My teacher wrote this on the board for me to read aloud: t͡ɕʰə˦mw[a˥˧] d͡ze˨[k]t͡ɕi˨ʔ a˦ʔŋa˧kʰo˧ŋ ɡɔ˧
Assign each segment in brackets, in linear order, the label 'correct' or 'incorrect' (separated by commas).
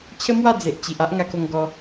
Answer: correct, incorrect